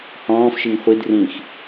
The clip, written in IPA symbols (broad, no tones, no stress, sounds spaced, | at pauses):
h ɔ̃ː f ʃ i ŋ χʷ i d r ĩ x